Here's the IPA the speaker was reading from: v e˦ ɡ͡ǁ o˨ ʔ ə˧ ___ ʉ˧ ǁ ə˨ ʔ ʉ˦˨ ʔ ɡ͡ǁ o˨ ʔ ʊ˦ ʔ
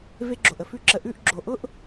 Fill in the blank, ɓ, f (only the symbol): f